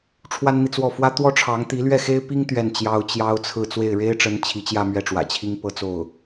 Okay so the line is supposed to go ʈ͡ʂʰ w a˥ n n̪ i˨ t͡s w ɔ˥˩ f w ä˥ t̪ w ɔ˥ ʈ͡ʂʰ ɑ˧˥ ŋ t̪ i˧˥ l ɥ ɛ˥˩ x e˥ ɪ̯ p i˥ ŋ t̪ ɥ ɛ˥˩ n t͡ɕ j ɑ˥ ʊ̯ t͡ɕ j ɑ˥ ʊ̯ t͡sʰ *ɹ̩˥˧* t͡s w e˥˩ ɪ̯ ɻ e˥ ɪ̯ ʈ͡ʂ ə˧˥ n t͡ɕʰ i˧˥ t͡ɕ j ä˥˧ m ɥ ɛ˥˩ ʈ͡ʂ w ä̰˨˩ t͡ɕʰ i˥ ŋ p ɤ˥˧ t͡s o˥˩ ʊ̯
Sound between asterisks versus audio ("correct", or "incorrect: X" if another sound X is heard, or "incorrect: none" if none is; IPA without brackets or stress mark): correct